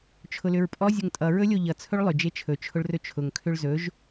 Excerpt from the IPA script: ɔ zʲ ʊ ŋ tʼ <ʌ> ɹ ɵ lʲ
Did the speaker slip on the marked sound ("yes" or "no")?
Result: no